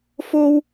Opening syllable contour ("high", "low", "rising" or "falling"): high